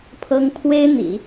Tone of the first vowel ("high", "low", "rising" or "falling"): high